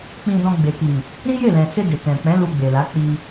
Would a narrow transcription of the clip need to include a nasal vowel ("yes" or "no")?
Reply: yes